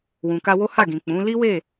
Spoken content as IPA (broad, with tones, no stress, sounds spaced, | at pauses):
w ũ˨ k a˧ w o˦ h a˦˨ ɡ ĩ˨ k͡p ũ˨˦ l i˦ w e˦˨